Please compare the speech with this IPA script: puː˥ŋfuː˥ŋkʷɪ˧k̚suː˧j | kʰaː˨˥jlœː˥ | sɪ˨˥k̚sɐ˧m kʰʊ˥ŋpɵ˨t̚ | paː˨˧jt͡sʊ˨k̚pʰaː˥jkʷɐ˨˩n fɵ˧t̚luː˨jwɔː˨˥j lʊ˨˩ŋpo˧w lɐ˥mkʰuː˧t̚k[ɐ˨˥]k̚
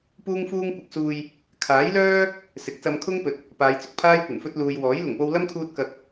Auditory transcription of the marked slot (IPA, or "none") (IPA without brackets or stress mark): ɐ˨˥